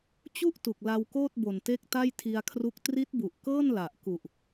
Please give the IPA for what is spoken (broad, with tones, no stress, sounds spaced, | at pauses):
t͡ɕ u˥˩ ʔ t u˨˩ k̚ l a˧ w k oː˥˩ t̚ b o˨˩ n t e˦˥ k̚ t a˥˩ j tʰ i˧ a̯ kʰ r u˦˥ k̚ t r i˦˥ t̚ b u˨˩ ʔ k ɤː˥˩ n l a˨˩ ʔ k u˨˩ ʔ